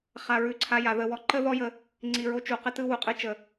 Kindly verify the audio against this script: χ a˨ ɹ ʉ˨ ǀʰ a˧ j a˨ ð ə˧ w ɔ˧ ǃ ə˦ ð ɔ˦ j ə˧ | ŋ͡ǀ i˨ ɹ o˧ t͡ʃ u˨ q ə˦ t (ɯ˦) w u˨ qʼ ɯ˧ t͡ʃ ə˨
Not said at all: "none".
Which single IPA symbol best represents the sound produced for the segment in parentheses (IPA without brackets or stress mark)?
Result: ɯ˦